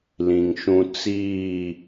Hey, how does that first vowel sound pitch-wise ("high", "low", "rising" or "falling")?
low